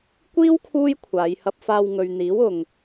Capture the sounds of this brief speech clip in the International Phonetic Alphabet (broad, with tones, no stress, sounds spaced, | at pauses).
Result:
kʷ iː˥ w kʰ uː˥ j kʷʰ aː˨˧ j h ɐ˧ p̚ f aː˧ w ŋ ɵ˨ ɥ n̪ iː˨˥ w ʊ˨ ŋ